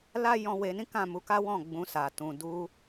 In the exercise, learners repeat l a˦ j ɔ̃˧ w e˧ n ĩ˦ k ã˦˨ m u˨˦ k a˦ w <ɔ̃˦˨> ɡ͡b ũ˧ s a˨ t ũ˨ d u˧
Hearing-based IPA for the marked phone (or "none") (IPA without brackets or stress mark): ɔ̃˦˨